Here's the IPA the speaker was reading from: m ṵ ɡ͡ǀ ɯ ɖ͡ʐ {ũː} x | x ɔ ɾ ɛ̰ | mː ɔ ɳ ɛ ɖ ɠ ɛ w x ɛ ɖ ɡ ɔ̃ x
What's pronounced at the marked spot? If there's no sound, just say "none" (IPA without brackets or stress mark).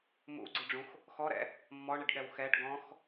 ũ